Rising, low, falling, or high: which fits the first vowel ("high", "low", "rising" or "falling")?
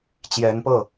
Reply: rising